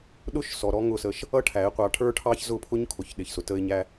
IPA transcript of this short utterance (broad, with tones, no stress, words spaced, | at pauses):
ɗʊ˦ʃsɔ˨ ɾɔ˦ŋʊ˦˨sə˧ʃ | ʌ˦ ʈʰæ˨˦ɪ̯qʷɑ˧ ʈʰə˞˦ʈʰɑ˦çzʊ˦˨ pʰʊ˦ɲkʰʊ˨çɗɪ˨çsʊ˨ tə˧ɪ̯ɲæ˧